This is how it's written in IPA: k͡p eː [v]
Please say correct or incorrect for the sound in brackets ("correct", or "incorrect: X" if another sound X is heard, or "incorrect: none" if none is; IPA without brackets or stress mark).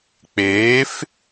incorrect: f